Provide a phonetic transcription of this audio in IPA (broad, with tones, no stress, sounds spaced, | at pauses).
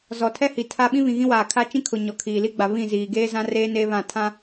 z ɔ˨ tʰ ɛ˦ h i˨ tʰ a˦ ɓ ĩ˦ β ĩ˨ ɣ ĩ˦ w aː˨ kʰ a˦ t͡ʃ ĩ˦ kʰ ʊ˨ ɲ ɔ˨ kʰ iː˨ l i˦ ɡ͡b a˨ β ĩ˦˨ z iː˨ ɡ eː˦ z ã˦ r eː˦ n e˦ β ã˦˨ tʰ ã˦